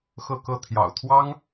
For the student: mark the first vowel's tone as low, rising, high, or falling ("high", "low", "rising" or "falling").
falling